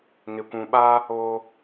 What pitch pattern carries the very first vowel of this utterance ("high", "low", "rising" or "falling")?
low